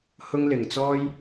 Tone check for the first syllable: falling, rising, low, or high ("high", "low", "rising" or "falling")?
high